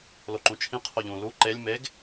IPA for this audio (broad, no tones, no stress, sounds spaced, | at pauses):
l o ǃ ũ t͡ʃʰ ĩ qʰ o ʎ ũ l u ǃ e lʲ m e ɡ